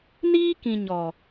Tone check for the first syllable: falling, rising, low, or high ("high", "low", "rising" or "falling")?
high